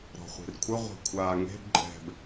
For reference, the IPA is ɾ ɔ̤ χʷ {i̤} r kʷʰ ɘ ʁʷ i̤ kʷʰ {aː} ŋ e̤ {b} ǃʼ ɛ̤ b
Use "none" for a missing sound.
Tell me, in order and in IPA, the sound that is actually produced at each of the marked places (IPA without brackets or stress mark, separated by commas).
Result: i̤, aː, b